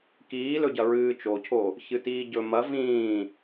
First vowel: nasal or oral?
oral